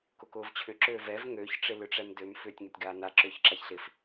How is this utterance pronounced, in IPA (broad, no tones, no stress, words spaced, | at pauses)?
kʊkʊːvt͡ɕʰʏ ǁøːvɛv ŋøç ʈ͡ʂɪlʏʈ͡ʂɛmdøm fʏːtʲŋɛtʲɡaːna ǁʏːçǁaçɬɪf